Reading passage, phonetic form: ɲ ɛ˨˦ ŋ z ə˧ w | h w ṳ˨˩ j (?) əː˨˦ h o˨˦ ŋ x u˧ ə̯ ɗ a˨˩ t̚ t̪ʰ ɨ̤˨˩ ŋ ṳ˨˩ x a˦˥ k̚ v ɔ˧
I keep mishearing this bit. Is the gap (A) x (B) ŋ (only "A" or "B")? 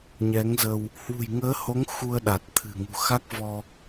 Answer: B